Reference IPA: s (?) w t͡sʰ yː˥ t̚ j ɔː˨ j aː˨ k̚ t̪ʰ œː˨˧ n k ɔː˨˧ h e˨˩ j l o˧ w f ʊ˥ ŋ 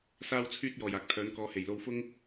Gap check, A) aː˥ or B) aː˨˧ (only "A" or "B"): A